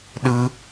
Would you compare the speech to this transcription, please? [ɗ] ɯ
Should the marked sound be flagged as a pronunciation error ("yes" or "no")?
no